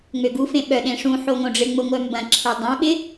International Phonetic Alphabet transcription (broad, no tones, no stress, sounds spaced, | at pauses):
ŋ͡m ø ɡ u f ẽ ɓ œ ɗ ẽ ʂ ũ ħ o ŋ õ ɖ͡ʐ ɪ ŋ͡m ʊ ŋʷ œ m b ɐ̃ ǁʰ e dˤ œ̃ ɓ ɪ